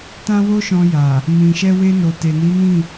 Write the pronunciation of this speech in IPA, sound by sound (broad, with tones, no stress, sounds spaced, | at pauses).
t ã˦ w o˦ ʃ ɔ̃˧ j a˨ | m ĩ˨ ʃ ɛ˧ w e˧ n o˨ t e˨ n i˨˦ n ĩ˦˨